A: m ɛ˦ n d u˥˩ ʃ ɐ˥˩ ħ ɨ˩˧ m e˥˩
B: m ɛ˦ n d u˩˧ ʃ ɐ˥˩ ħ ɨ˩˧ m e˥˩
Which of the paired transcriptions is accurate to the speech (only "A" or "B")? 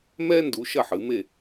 B